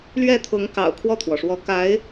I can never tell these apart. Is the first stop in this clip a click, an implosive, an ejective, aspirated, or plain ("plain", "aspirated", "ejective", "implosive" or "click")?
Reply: aspirated